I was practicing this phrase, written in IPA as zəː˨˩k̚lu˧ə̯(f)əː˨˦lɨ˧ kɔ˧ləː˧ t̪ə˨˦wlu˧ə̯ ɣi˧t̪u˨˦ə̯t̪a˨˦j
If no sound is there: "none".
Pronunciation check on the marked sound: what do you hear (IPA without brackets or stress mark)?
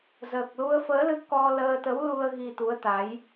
f